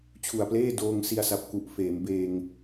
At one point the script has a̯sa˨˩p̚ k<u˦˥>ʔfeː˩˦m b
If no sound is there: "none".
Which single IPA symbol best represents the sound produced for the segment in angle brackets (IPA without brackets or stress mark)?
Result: u˨˩